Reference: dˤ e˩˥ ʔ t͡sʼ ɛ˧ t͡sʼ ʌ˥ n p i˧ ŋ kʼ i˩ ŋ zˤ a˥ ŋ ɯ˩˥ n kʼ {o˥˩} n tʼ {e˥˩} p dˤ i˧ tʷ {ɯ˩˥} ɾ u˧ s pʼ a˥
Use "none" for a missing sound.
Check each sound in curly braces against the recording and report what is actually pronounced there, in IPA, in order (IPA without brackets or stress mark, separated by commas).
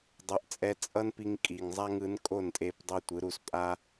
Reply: o˥˩, e˧, ɯ˩˥